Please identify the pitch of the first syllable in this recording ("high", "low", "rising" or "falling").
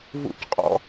high